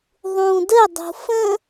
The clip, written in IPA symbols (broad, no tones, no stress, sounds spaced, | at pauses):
ðˤ ũ d ə dˤ ṳ f ə̃